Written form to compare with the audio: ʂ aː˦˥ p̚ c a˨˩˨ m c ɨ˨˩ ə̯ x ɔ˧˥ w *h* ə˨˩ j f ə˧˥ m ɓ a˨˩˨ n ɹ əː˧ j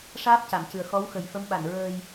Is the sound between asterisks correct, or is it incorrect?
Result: incorrect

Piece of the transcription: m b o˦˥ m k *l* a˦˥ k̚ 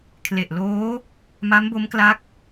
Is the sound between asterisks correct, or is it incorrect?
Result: correct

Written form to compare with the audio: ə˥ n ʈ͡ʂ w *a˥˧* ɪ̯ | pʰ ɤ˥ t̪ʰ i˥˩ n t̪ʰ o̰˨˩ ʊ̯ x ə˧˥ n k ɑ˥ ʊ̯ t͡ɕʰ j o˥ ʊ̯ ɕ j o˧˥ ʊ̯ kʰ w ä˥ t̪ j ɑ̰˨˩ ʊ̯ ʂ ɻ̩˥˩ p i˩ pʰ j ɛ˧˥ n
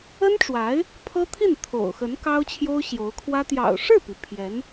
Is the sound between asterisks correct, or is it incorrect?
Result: incorrect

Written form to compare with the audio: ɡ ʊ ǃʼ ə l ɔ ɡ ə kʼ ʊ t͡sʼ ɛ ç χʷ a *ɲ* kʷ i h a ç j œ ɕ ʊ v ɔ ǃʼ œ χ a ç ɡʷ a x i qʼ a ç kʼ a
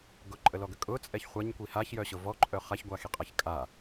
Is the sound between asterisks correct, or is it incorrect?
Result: correct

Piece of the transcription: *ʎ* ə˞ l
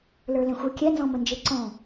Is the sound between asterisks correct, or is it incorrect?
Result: incorrect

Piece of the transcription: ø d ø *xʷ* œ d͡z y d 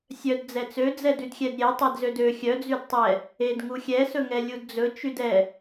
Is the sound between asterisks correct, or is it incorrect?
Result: incorrect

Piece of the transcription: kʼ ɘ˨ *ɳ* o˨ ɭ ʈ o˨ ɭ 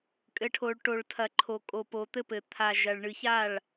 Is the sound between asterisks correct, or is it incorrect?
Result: incorrect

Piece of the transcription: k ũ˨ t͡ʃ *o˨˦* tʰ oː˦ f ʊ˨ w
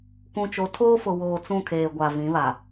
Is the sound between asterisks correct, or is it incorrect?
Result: correct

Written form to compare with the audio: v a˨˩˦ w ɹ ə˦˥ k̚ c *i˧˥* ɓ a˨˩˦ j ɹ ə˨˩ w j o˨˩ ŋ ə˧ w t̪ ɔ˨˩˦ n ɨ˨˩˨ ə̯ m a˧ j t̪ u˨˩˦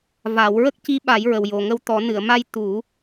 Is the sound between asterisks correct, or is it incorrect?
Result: correct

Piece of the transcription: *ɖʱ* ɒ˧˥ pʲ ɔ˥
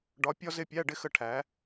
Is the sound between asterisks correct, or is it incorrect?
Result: incorrect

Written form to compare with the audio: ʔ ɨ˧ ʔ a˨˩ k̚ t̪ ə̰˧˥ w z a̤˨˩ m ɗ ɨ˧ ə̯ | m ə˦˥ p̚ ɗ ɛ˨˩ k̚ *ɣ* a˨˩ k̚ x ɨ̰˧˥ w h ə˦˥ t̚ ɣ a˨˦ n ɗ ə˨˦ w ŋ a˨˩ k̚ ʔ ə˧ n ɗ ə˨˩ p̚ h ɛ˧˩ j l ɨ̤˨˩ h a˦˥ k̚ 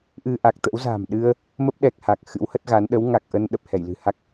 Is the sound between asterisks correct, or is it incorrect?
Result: incorrect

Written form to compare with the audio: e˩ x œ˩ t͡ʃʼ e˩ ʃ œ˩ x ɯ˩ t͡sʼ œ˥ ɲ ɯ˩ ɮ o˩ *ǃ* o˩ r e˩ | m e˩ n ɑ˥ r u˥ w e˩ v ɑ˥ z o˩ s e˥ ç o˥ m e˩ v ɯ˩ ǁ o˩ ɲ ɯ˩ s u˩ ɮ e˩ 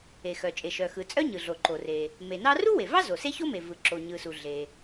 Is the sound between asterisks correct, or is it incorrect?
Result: correct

